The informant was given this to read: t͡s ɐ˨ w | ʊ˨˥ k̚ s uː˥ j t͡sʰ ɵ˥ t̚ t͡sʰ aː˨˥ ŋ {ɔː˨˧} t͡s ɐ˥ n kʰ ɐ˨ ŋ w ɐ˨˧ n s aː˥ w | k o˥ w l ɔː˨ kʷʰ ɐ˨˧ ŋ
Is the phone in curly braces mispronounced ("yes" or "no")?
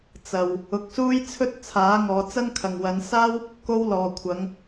no